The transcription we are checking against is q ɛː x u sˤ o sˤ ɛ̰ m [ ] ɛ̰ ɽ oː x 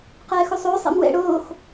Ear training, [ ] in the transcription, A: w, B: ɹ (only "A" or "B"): A